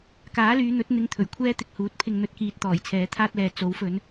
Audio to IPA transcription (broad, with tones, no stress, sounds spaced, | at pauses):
k aː˨˥ l yː˨˧ n̪ ɵ˨˥ t̚ n̪ ɪ˧ ŋ t̪ʰ ɵ˨˩ ɥ kʷʰ ɛː˥ t̪ ɪ˨ k̚ h uː˨˥ t̚ pʰ ɪ˧ ŋ n̪ ɵ˧ t̚ k iː˨ t̚ t̪ ɔː˨˩ j t͡sʰ ɛː˨˥ t̪ʰ aː˥ t̚ l ɛː˨ t͡s o˨˥ w f ɵ˨˧ n